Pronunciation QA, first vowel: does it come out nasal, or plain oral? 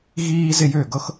oral